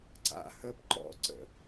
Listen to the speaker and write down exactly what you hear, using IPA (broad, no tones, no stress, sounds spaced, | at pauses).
ǀ a̰ h ə p ǃ ɔ̰ ǀ ə̰